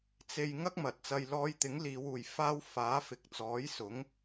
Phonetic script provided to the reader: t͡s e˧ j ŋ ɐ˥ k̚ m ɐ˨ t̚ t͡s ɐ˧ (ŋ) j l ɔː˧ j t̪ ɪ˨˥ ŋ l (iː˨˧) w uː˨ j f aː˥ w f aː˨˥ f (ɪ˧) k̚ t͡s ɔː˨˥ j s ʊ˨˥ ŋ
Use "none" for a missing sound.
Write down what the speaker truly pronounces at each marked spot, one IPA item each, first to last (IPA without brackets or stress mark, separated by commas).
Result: none, iː˨˧, ɪ˨